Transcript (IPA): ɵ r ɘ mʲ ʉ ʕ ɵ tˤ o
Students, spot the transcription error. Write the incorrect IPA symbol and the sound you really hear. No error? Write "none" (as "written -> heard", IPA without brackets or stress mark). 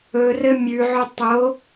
none